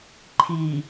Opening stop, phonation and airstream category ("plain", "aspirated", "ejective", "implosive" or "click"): click